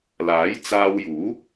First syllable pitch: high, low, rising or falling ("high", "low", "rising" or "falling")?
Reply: rising